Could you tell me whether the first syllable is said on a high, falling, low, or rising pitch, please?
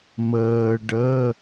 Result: low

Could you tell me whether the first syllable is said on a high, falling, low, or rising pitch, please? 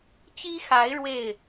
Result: high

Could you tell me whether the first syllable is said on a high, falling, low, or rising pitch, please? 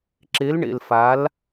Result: rising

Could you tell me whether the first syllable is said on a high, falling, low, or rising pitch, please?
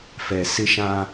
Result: low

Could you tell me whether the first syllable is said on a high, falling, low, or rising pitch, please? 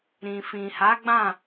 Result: low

